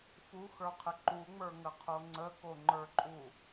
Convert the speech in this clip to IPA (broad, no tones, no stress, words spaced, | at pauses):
fuxə˞qʰə ǃuŋ͡mə˞ŋəqʰo ŋ͡ǀəkoŋ͡ǃə˞ǃʼu